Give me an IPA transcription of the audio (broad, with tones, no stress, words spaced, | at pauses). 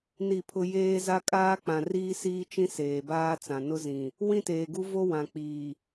ni˦˨pʰʊ˦ jeː˦za˦ kʼaː˦k͡pã˨ riː˦siː˦t͡ʃĩ˦ seː˨baː˦t͡sã˨ nʊ˦zĩ˨ | wĩ˦teː˨ɡu˦vo˦ wã˨k͡piː˨